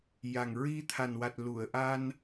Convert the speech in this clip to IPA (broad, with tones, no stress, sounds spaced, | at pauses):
j a˨˩ ŋ ɹ i˧ t̪ʰ a˨˩ n w a˨˩ t̚ l u˨˩˨ ə̯ ʔ a˧ n